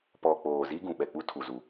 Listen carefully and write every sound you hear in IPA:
p ɔ˨ k͡p oː˨ z i˦ ɡ ũ˨ ɓ ɛ˨ k͡p u˦ tʰ u˨ z u˨

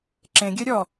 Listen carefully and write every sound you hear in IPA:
ǁ ẽ ɡʲ œ ɾʲ ɔ

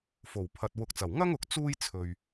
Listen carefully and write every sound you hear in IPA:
f o˨˩ w pʰ ɐ˨ t̚ w ʊ˨ k̚ t͡s ɐ˨˩ w ŋ ɐ˥ ŋ ʊ˨ k̚ t͡s uː˥ j t͡sʰ ɵ˨ ɥ

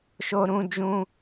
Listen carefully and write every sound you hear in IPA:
ʃ o˧ ɾ ũ˧ d͡ʒ ũ˧

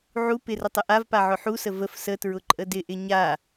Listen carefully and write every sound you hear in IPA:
ʕ u p ɪ r ə tˤ ə ʔ a v p a ʕ ʊ ħ u s ə v ə f s ə t ɹ ʊ ǃʼ ə d ɪ ʔ ɪ ɲ a

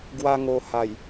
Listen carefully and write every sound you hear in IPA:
ɡ w a˧ ŋ o˨˩ h a˨˩ j

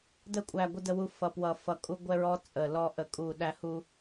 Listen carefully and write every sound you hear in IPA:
d ə˧ kʷʼ æ˨˩ ɡʷ ə˧ d ə˧ w u˧ f ʌ˨˩ p w ʌ˨˩ f ʌ˨˩ kʼ u˧ ɡʷ ɛ˧ ɹ ɔ˧ t͡sʼ ə˨˩ l ɔ˧ ʔ ə˨˩ kʼ u˨˩ ɗ æ˧ h u˧

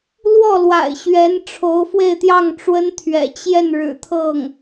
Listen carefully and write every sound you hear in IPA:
l w ɔ˥˩ l w a̰˨˩ ɪ̯ ɕ ɥ ɛ˧˥ n ʈ͡ʂʰ o˧˥ ʊ̯ f w e˥˧ ɪ̯ t̪ j ɑ˥˩ ŋ ʈ͡ʂ w ə˥ n t̪ʰ ɥ ɛ̰˨˩ t͡ɕ j ɛ˥˩ n ɻ ɻ̩˨˩ t̪ʰ ɤ˥˩ ŋ

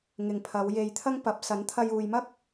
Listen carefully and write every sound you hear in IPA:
ŋ ɪ˨ ŋ pʰ ɐ˨˧ w j e˨ j t̪ʰ ɐ˥ ŋ p ɐ˨˥ p̚ s ɐ˨˥ n t̪ʰ ɐ˧ j uː˨ j m ɐ˥ k̚

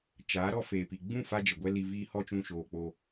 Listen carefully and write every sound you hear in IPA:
t͡ʃ aː˨˦ ɾ ɔ˦ f eː˨ p i˨ ɡ͡b ũ˦˨ f a˦ d͡ʒ ə˨ ɡʷ ɛ˦ l i˧ v iː˦ h ɔ˦ t͡ʃ ũ˧ ʃ oː˨ k͡p o˧

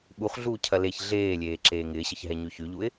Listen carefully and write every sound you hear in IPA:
ɓ u χ ɮ uː cʰ ɐ l e ç ɮ eː lʲ eː ǁ eː ŋ ɪː ɕ ɪ ç ɦ ɛ ɲ y ç y ʎ u ɪ̯

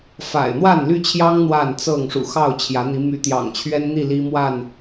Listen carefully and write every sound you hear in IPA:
f a̰˨˩ ɪ̯ n̪ w a˥˨ n l y˥˨ t͡ɕʰ j ɑ˦ ŋ n̪ w a˥˨ n t͡s ɤ˥˨ ŋ ʂ ṵ˨˩ x ɑ˥˨ ʊ̯ t͡ɕʰ j ä˨˦ n̪ i˨˦ m y˨˦ t̪ j ɑ̰˨˩ ŋ t͡ɕʰ ɥ ɛ˦ n n̪ i˥˨ l i˦ m w a˥˨ n

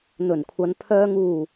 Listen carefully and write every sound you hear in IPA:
n̪ ɵ˨˩ n kʷʰ ɐ˨˧ n pʰ œː˨ ŋ uː˨˩

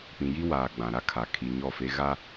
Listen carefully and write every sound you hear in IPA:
p ĩ˨ j i˦ w aː˨ ɡ͡b ã˨ ɾ a˦ kʰ a˨ kʰ i˨ ɲ ɔ˦˨ f e˦ ɣ a˦

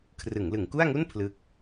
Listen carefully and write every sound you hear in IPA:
kʰ r ɯ˩˦ ŋ l ɯ˩˦ ŋ k u˥˩ a̯ ŋ u˥˩ n pʰ l ɯ˥˩ k̚

